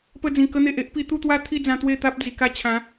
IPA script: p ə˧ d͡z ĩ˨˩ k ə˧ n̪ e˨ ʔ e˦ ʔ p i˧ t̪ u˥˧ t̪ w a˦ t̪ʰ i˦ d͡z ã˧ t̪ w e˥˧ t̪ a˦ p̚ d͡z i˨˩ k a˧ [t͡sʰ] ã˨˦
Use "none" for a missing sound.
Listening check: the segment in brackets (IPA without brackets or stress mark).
t͡ɕʰ